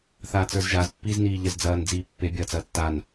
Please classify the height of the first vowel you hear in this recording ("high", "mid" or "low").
low